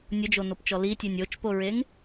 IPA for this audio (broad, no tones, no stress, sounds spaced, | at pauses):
nʲ ʊ d͡ʒ o n o p t͡ʃ ɔ l i tʲ e nʲ o t͡ʃ p o ɹ e ŋ